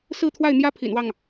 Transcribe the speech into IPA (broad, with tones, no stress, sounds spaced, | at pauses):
s ɹ̩˥˧ t̪ʰ w a˥˩ ɪ̯ n̪ j ä˥ pʰ ḭ˨˩ n w ɑ˥˩ ŋ